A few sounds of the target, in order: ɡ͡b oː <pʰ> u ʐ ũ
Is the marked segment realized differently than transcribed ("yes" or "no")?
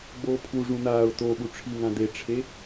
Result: no